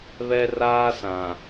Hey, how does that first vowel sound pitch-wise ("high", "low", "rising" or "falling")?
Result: high